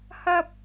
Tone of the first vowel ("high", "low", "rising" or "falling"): high